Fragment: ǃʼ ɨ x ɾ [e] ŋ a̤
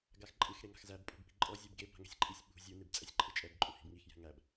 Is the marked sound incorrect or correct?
correct